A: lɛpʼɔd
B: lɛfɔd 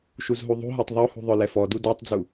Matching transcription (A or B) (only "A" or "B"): B